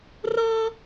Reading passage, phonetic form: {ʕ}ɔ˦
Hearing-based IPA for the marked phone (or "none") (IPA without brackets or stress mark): r